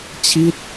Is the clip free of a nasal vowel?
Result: yes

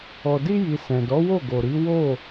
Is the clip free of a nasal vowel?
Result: no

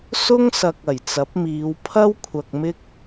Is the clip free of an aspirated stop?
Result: no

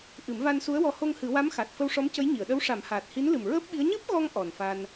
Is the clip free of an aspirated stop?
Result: yes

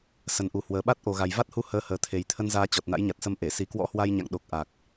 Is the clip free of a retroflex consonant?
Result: yes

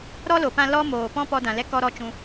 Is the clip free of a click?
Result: yes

